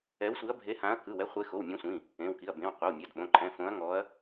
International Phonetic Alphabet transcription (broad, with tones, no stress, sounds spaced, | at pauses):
ɛ˨˦ w sʷ i˨˦ ɐ̯ bʱ e˨˦ h ã˨˦ ɐ̯ k ɯ˩˧˩ w ɛ˨˦ χʷ e˨˦ x o˩˧˩ w mʲ ɔ̃˨˦ sʷ ĩ˩˧˩ | ẽ˩˧˩ w k i˩˧˩ ɐ̯ b ẽ˩˧˩ w qʷ ɤ˩˧˩ w mʲ a˩˧˩ d ɓ õ˩˧˩ ǃʰ ɛ̃˩˧˩ f õ˨˦ ɐ̯ ŋ ɔ˨˦ ɐ̯